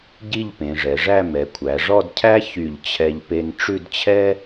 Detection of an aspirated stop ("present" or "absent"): present